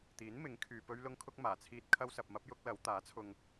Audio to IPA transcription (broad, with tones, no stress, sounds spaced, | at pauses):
t̪ iː˨˥ n m ɪ˨˥ ŋ kʰ yː˨ p ɵ˥ ɥ l ʊ˥ ŋ kʰ ʊ˥ k̚ m aː˨˩ t͡sʰ iː˥ t̚ kʰ ɐ˥ w s ɐ˧ p̚ m ɐ˥ p̚ j ʊ˥ k̚ l ɐ˨˥ w t̪ aː˨˥ t͡sʰ ʊ˧ ŋ